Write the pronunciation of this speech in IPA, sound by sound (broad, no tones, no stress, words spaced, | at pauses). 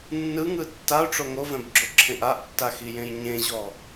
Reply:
nːɯŋɯ tːaʊ̯ʈ͡ʂo ŋovɛ̃bɡ͡ǁoǁʰẽʔ aʔtːaxijẽj ɲẽʑɔ